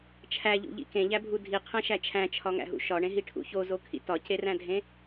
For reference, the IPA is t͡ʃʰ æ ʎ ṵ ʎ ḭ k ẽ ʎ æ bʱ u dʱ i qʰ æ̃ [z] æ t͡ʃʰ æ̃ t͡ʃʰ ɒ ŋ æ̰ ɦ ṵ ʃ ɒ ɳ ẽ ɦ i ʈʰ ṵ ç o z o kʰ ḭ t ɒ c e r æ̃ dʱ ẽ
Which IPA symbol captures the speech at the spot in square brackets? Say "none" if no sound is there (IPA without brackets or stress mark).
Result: ʃ